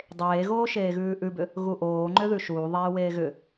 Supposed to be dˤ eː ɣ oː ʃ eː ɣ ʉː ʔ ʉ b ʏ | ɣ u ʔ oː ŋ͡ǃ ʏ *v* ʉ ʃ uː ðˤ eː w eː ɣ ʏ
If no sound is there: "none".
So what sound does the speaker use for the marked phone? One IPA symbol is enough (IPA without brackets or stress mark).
ð